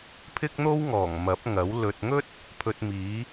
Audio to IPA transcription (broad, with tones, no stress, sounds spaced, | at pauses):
pʰ ɪ˥ k̚ n̪ o˥ w ŋ ɔː˨˩ ŋ m ɐ˨˥ p̚ ŋ ɐ˨˥ w l ɵ˨ t̚ ŋ ɵ˥ t̚ | pʰ ɵ˧ t̚ m iː˨˥